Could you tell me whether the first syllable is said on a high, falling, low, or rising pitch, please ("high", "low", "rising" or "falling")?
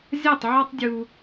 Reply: falling